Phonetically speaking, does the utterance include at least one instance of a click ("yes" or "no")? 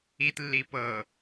no